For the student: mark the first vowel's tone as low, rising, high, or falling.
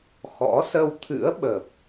rising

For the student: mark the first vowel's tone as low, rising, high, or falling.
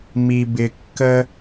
high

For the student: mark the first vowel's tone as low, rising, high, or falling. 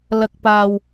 low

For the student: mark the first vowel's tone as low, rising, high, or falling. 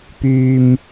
low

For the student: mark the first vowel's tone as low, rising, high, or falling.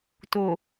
low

